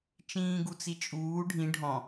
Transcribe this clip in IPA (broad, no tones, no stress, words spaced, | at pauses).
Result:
t͡ʃĩːɡut͡sit͡ʃʼuː ɖʱĩ ɖʱɔ̃